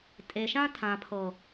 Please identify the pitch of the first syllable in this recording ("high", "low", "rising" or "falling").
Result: low